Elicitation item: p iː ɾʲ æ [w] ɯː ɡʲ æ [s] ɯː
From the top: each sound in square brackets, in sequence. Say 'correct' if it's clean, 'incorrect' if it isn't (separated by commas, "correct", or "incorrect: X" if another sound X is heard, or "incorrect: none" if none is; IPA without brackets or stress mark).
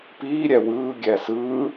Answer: correct, correct